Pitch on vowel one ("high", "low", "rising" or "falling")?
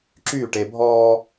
falling